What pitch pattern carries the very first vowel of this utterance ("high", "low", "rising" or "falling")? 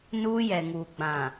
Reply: high